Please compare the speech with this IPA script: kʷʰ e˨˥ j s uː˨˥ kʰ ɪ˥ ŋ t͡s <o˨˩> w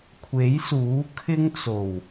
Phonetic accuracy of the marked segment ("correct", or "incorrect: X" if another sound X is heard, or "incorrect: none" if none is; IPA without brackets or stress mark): correct